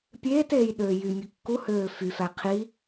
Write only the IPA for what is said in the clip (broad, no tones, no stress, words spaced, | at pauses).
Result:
pʲeːteːj ɗøːjymʲɯ kːuhøː fyfæ qʰi